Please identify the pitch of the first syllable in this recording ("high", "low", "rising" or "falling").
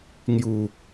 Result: low